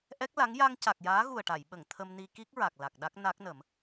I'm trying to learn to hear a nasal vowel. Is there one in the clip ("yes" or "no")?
no